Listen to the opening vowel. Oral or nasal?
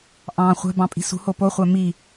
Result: nasal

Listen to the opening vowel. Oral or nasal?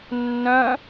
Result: nasal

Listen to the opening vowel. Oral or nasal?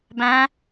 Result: nasal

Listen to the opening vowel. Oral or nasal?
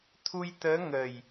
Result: oral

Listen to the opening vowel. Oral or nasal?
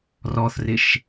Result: oral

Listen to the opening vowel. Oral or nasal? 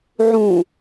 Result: nasal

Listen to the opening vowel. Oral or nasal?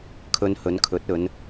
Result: oral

